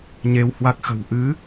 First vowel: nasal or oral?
oral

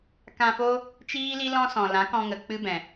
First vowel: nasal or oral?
nasal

